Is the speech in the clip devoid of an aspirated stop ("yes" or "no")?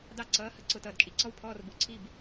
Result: no